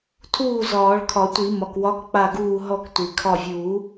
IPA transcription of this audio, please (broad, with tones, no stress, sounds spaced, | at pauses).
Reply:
tʰ uː˥˩ z ɒː˨˩˦ ɭ kʰ ɒ˨˩˦ tʷ i˨˩˦ m ɒ˩ k w ɒ˨˥ k k͡p a˧˩ ɡ uː˧˩ ɦ ɔ˧˩ k tʷ i˩ kʰ ɒ˧˩ vʲ uː˨˩˦